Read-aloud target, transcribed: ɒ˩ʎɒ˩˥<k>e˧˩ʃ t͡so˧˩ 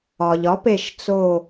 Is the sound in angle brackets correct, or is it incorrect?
incorrect: p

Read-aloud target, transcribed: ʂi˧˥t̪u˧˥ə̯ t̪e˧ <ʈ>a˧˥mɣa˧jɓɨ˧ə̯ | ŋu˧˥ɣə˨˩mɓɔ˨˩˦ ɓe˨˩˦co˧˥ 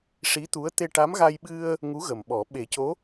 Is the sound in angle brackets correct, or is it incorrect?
correct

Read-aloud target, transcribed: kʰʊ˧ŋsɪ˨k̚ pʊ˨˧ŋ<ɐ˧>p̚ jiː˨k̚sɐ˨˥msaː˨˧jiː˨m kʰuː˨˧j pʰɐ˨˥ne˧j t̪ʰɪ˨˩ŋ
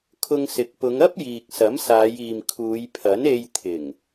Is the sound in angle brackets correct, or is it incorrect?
incorrect: ɐ˥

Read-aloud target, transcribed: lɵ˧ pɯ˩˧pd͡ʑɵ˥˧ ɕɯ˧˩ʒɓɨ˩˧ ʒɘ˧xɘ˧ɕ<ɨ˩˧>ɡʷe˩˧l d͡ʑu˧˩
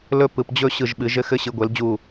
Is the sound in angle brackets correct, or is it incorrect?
correct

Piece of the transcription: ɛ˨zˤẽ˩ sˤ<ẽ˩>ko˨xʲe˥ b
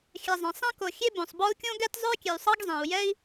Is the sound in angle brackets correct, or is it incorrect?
incorrect: ẽ˥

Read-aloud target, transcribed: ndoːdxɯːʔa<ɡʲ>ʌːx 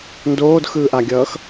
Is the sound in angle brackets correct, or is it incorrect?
correct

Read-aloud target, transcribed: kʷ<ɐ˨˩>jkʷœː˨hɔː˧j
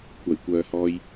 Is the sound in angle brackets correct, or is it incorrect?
correct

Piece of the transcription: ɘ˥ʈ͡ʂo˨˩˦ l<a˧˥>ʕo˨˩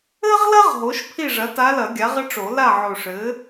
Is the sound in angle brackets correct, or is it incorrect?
incorrect: a˥˨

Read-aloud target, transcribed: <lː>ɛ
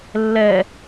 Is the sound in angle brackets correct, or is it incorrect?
correct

